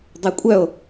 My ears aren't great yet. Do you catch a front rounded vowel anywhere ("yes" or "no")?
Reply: yes